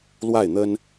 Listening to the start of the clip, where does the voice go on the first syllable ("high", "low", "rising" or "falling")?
falling